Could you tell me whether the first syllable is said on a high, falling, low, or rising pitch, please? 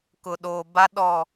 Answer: low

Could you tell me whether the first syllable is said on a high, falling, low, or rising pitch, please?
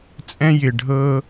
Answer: high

